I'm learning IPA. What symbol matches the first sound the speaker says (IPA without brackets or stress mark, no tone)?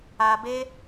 a